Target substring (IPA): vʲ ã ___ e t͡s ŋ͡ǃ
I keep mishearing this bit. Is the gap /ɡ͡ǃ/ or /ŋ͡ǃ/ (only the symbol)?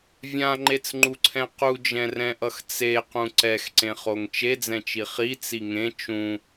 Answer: ŋ͡ǃ